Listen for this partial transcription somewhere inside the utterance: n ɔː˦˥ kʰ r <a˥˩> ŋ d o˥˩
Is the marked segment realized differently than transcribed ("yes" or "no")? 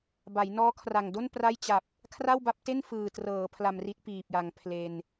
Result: yes